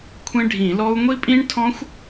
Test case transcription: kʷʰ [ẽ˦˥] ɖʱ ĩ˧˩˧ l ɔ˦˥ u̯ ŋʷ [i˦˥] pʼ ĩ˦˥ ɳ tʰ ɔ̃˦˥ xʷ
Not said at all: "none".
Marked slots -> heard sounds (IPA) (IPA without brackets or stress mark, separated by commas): ẽ˦˥, i˦˥